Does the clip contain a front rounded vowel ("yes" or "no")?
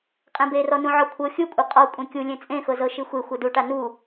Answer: no